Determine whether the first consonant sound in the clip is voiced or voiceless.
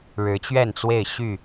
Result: voiced